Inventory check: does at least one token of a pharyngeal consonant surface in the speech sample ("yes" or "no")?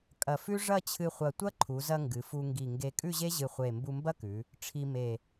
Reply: no